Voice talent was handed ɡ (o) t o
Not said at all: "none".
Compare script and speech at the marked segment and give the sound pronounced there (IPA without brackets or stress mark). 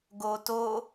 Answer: o